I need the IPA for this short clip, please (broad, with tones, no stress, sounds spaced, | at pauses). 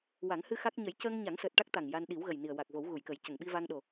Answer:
w a˨˩˦ ŋ h ɨ˧ x a˦˥ k̚ ɲ ə˨˩˦ j c əː˧ ŋ ɲ a˨˩˦ ŋ s əː˨˩ t̚ ʈ a˦˥ k̚ t̪ a˨˩ ŋ j a˧ n ɗ i˨˩˦ w ɣ ə˨˩ j n i˨˩ ə̯ w a˨˩ k̚ v o˨˩˦ w ɣ u˨˩˨ j k ə˨˩˦ j c ə˨˩˨ ŋ ɓ i˧ v a˧ ŋ ɗ o˨˩